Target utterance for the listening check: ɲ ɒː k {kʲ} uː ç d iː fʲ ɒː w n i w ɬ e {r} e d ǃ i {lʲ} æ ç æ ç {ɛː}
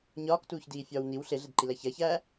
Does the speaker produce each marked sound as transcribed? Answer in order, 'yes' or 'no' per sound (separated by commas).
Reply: no, no, no, no